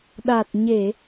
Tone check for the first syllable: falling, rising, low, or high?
low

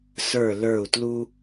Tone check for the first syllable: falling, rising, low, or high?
falling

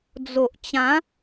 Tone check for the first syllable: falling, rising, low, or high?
low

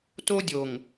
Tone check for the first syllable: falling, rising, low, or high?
high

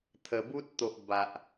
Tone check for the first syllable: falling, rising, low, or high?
low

